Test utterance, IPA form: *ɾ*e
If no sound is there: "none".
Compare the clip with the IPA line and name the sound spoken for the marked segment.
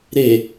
ɾ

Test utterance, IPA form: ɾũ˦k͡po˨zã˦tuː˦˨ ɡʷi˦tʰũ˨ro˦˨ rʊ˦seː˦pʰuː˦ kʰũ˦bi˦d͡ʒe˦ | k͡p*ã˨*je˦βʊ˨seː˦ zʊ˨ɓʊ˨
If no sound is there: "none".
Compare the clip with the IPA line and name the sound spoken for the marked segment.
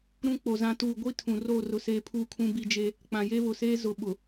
ã˨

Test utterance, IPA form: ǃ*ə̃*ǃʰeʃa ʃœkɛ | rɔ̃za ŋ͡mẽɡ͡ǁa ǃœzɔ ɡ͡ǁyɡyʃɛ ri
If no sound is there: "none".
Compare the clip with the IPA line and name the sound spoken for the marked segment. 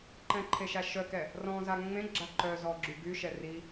ɛ̃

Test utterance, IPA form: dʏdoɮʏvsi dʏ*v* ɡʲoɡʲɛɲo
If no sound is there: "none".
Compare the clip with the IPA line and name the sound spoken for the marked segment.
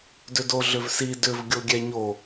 v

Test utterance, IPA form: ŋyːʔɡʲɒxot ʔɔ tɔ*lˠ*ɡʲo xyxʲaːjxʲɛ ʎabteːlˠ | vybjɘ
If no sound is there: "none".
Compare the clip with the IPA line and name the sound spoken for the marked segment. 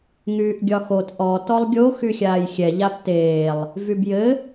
lˠ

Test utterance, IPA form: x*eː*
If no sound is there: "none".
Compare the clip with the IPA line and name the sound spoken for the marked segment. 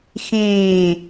ẽː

